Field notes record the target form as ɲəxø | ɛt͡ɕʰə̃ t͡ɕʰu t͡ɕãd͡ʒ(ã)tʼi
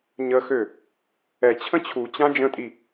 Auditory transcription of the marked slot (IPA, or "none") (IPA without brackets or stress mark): ə̃